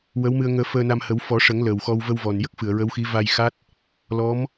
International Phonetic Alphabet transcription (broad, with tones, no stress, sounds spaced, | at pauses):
w ə˧˥ w m ɨ˧ ə̯ ŋ əː˧ f əː˧ n a˧ m h ə˨˩˦ w f ɔ˨˩˦ ʂ ə˨˩˦ ŋ l əː˨˩ w x ɔ˧ w v ə˧ w v ɔ˨˩ n j ə˦˥ k̚ f ɨ˨˩˨ ə̯ ɹ ə˧˥ w x i˧˥ v a˧ j x a˦˥ t̚ | l ɔ˧˥ m